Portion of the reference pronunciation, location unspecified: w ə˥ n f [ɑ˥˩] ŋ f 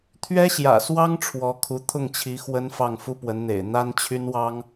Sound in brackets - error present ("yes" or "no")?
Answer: no